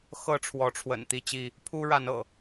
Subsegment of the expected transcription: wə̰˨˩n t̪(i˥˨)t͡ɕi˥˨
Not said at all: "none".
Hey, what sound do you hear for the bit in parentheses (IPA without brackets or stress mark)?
i˥˨